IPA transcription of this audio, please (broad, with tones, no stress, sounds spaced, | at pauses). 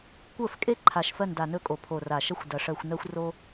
kʷ ɜ˦˨ f kʼ e˦ ǃʰ a˨˩ ʃ f ɜ˦˨ n d a˨˩ n ɵ˦˨ kʼ o˨˩ pʰ o˨˩ r a˨˩ ʃ ɐ˦ xʷ d ɐ˨˩ ʂ ɜ˦˨ xʷ n ɜ˦ xʷ r o˦